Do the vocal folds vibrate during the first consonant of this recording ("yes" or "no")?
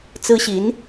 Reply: no